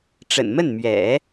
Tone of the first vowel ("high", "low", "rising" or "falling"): low